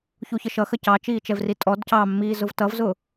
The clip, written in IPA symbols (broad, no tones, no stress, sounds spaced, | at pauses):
ç u ç ə ʃ ʌ x ə c ɑ t͡ʃ iː t͡ʃ ɛ v r i tʼ ɔ d c ɑ mː iː z ʊ v t ʌ v z ʊː